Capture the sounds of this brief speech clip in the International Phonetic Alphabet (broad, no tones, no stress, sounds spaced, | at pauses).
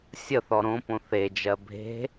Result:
sʲ ə θ ɔ ɾ õ p õ θ e d͡ʒ ɜ bʱ e̤